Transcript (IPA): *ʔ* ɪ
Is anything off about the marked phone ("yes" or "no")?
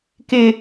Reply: yes